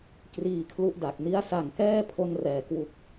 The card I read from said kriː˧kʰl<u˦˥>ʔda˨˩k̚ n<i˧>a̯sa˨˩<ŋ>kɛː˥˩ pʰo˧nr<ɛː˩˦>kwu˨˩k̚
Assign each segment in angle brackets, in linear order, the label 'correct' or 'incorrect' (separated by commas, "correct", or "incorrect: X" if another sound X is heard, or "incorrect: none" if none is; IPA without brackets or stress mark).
correct, incorrect: i˦˥, correct, correct